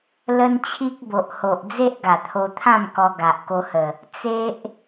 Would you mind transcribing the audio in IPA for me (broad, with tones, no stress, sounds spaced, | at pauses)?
l ə˦ n t͡ɕʰ i˦ k̚ b o˨ ʔ h o˨ ʔ d͡z e˦ ʔ ɡ a˨˩ t̪ʰ o˧ t̪ʰ ã˥˧ m k ɔ˧ ɡ a˨ ʔ k o˧ h ə˨˩ | t͡s e˦ ʔ